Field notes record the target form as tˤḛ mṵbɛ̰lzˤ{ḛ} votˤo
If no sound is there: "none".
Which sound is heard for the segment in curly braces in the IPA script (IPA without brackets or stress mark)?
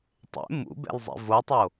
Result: ḛ